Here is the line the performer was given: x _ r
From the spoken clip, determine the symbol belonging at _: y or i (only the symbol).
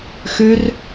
y